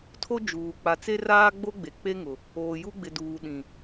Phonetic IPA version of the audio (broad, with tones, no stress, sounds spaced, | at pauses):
tʰ o˦ d͡ʒ uː˨ k͡p a˨ t͡s e˦ r aː˦ ɡ͡b o˦ ɡ͡b e˨ k͡p e˦ ŋ ʊ˨ | oː˨ j u˦ ɡ͡b ɪ˨ d uː˨ ɗ ĩ˨